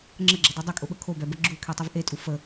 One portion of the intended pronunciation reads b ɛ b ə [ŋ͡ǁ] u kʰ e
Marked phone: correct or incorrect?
incorrect: ɡ͡ǁ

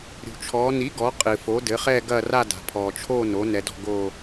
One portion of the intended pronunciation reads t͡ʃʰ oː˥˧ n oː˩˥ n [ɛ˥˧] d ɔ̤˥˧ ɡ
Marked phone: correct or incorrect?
incorrect: ɛ˩˧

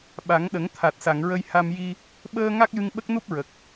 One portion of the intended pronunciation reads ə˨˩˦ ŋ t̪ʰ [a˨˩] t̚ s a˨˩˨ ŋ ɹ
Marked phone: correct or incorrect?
correct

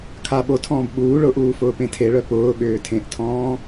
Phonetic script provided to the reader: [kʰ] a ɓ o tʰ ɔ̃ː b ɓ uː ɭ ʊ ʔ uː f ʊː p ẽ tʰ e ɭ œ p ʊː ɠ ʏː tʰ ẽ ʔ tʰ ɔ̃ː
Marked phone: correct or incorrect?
correct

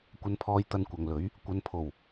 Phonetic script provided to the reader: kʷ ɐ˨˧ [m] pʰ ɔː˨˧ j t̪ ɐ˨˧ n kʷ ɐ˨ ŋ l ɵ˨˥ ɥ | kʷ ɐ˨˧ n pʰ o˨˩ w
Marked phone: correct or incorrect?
incorrect: n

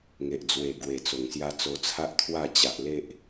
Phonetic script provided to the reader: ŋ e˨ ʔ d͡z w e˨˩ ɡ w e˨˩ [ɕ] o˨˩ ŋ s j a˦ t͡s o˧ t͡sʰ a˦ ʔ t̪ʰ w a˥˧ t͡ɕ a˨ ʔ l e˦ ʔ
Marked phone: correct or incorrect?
incorrect: t͡s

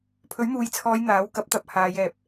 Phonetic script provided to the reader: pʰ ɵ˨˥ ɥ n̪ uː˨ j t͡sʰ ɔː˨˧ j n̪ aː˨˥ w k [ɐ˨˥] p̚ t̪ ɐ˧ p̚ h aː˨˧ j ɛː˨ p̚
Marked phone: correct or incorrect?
correct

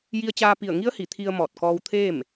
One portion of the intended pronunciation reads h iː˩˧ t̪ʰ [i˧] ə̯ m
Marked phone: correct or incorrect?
correct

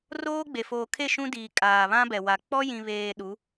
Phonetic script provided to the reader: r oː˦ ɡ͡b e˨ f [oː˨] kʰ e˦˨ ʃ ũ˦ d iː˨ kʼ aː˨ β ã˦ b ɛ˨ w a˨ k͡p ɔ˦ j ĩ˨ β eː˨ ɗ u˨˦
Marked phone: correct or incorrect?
correct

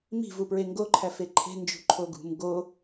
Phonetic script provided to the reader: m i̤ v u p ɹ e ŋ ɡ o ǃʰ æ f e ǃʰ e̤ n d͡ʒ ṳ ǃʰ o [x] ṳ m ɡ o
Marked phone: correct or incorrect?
incorrect: ɡ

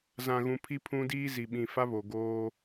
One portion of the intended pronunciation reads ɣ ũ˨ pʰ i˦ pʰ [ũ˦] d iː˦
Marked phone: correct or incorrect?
correct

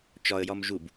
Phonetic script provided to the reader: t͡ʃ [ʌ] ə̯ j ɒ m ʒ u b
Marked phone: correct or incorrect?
incorrect: ɒ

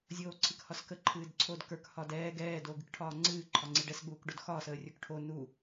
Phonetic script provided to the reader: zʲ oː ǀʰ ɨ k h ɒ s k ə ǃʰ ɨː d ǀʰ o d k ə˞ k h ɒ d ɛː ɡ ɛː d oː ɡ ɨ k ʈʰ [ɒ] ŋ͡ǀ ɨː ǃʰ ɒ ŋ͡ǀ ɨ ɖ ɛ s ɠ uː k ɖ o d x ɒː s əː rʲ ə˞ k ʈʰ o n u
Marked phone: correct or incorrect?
incorrect: ɒː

